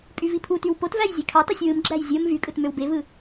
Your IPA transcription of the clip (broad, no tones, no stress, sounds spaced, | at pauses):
pʼ y v i pʰ u t y w p o t v æ j zʲ e kʰ ɑ t ɑ sʲ w ɯ m ɡ͡ǁ æ j zʲ o m v y kʼ ɯ t m ø w b e v ɯ